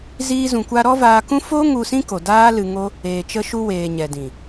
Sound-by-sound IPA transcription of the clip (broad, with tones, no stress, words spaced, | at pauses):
ziː˦zũ˧kʷa˦ ɾɔ˦vaː˧kũ˦ fo˦ŋu˧ sĩ˦ko˨daː˦ lɨ˧ŋo˦ | eː˨t͡ʃə˧ʃu˧ weː˨ ɲɛ˨dĩ˨